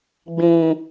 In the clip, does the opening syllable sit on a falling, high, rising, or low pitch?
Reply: low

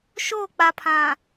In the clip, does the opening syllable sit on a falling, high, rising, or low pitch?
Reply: falling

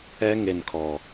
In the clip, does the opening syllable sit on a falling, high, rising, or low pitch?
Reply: high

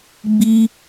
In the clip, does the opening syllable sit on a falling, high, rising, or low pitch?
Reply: high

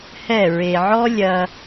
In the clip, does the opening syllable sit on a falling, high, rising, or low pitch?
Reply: falling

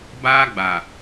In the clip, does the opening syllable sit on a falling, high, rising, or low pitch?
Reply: high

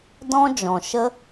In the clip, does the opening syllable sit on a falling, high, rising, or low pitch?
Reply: high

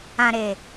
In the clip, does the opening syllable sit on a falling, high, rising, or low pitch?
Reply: low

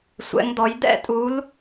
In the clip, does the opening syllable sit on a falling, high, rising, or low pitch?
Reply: rising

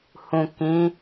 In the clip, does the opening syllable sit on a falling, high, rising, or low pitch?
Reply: low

